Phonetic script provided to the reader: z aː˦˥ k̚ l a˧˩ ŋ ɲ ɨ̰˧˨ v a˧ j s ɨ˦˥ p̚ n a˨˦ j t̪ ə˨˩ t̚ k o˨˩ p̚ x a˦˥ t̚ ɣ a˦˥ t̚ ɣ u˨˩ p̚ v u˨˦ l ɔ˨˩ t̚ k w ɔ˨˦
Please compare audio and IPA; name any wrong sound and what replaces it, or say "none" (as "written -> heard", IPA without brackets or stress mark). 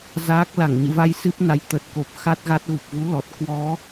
none